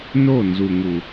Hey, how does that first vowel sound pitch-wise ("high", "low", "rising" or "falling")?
falling